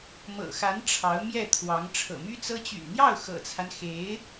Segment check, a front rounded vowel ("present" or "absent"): present